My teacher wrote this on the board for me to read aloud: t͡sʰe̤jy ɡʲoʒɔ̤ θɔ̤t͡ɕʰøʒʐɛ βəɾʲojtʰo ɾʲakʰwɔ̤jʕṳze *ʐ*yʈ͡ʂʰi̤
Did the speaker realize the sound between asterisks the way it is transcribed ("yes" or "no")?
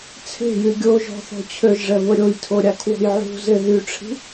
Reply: no